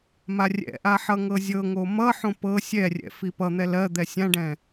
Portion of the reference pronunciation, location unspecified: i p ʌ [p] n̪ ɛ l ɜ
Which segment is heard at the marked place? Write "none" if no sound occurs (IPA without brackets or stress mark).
none